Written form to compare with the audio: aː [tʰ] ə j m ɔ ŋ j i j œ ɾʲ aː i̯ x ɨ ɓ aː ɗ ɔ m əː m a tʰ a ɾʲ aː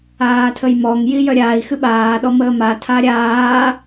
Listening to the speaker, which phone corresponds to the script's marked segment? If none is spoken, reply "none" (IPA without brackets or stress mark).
tʰ